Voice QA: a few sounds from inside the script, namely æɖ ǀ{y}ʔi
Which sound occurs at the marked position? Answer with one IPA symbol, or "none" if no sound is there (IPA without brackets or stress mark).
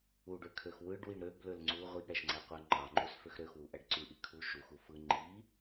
y